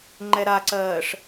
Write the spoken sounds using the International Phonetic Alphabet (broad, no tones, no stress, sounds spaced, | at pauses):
ŋ͡ǃ ɛ ɾ a ǀ ɜː ʂ